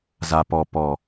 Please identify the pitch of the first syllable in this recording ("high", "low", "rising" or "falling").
low